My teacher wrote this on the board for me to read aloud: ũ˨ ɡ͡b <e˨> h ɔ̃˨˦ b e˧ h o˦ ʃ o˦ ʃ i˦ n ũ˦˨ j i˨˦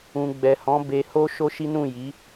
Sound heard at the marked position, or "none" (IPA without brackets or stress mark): ɛ˨